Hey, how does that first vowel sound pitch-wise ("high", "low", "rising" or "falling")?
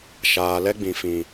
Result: low